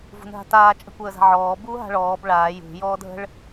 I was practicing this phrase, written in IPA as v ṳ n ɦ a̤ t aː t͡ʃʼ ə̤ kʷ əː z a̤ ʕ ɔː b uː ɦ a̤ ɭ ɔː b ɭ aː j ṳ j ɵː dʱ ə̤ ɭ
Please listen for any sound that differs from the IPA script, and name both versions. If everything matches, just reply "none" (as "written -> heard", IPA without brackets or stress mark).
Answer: ɵː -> ɔː